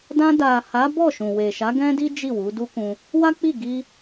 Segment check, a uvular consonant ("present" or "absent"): absent